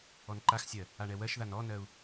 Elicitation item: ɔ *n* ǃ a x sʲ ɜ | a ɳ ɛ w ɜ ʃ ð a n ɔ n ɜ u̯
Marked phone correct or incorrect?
correct